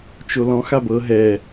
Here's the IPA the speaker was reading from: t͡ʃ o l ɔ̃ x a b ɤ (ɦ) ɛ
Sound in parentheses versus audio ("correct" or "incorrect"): correct